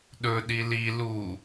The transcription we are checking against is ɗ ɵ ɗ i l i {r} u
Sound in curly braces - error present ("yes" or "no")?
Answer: yes